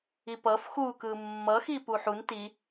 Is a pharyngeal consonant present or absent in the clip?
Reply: present